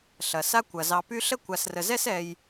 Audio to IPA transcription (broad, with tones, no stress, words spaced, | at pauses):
ɬɐ˩sa˦ kʷɐ˩zɑ˨py˦ ɬə˥kʷa˨srə˨zɛ˥s ɛ˨j